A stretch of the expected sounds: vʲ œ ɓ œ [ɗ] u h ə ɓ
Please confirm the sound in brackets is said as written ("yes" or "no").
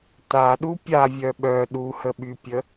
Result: yes